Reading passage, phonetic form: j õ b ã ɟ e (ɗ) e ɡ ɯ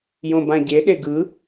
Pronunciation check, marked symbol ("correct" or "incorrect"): correct